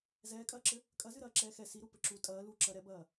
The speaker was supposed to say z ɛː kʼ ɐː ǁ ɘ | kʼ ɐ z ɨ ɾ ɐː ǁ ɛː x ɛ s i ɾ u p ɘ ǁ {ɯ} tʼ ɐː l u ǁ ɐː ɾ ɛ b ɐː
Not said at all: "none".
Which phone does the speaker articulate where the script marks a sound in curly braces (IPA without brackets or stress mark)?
u